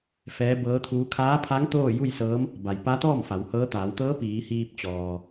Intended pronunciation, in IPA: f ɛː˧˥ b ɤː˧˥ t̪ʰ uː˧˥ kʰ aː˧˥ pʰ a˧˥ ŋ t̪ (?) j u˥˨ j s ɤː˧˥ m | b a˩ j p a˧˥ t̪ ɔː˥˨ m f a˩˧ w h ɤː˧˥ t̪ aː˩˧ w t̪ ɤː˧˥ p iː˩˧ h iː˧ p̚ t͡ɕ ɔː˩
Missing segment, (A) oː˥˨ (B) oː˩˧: A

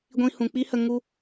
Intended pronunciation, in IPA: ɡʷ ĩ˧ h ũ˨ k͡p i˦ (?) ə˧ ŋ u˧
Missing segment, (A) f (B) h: B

